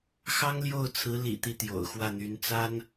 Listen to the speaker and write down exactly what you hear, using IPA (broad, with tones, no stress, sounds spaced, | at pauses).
x ɑ˥ ŋ l j o˥˩ ʊ̯ t͡sʰ ɹ̩˧˥ l ḭ˨˩ t̪ i˥˩ t̪ j o̰˨˩ ʊ̯ x w ä˥˩ n̪ y˧˥ n t͡s a˥ n